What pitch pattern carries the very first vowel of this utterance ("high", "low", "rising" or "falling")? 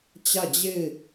falling